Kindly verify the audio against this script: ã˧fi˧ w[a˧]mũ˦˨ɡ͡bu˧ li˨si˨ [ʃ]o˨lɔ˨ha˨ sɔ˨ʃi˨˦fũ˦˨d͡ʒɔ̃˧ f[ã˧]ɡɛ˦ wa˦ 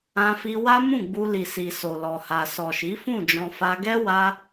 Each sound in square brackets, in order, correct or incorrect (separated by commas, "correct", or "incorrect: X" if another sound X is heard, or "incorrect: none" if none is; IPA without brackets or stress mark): incorrect: a˦, incorrect: s, incorrect: a˧